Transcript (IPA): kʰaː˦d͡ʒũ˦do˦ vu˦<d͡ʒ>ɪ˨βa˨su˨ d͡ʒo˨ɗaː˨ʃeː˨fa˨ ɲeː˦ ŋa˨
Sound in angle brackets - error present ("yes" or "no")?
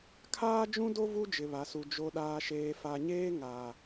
no